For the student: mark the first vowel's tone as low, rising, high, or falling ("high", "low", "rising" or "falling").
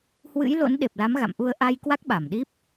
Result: rising